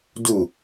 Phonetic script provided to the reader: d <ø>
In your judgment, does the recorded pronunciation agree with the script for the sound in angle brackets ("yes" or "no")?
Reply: no